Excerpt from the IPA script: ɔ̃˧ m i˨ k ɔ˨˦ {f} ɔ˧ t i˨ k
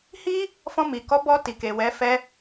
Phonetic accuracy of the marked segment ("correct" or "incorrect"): incorrect